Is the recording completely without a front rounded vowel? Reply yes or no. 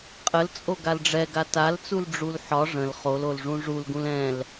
yes